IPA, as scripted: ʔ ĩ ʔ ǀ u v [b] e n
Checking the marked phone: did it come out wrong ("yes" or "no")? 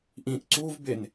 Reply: no